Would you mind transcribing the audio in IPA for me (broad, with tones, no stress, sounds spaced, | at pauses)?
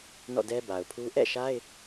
n ɔ̰˦˨ d ɛ˦ b a˨ ʊ̯ pʰ u˦ ʔ ɛ̰˦˨ ʃ a˦ ɪ̯